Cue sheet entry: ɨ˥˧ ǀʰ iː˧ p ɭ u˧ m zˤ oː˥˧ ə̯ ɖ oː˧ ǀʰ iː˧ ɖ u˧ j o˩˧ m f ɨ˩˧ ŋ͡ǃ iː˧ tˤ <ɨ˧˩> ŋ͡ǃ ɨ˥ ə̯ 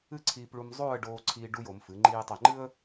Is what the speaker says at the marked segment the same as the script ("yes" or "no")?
no